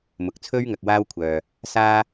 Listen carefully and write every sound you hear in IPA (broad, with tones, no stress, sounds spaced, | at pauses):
m ʊ˨ k̚ t͡sʰ ɵ˥ ɥ ŋ ɐ˨ k̚ w aː˥ w kʷʰ œː˨ | s aː˥